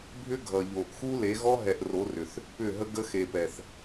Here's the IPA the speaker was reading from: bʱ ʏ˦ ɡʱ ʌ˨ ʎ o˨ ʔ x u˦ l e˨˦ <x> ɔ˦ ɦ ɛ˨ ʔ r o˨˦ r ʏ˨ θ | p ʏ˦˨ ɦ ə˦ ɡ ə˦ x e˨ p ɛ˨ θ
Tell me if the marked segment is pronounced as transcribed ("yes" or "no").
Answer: no